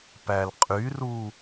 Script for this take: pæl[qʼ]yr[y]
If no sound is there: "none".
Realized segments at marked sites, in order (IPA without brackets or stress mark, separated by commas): qʼ, u